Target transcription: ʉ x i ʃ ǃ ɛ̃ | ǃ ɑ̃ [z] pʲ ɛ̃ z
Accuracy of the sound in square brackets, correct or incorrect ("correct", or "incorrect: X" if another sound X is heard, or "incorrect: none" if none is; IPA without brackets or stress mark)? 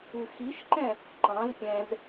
correct